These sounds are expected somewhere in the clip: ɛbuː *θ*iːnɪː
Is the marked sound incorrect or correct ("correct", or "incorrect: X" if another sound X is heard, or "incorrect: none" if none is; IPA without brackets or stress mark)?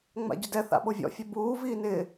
incorrect: v